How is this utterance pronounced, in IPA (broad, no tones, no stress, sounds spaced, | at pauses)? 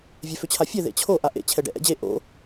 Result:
vʲ ɛ f ʏ t͡ɕʰ a fʲ ɛ ð ḛ t͡ɕʰ o ʔ a ʔ ḛ t͡ɕʰ ɛ ɖ ɛ̰ ʔ ɛ̰ d͡ʑ e ʔ o̰